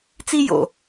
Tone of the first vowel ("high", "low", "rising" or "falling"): high